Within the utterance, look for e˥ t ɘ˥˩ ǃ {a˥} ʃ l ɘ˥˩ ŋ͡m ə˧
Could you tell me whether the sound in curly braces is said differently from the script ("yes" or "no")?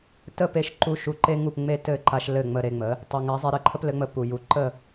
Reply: yes